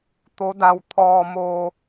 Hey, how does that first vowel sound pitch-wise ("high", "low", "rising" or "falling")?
rising